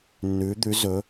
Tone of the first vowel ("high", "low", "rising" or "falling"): rising